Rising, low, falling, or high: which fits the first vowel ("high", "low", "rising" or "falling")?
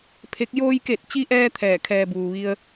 rising